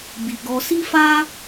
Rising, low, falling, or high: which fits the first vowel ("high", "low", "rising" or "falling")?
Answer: low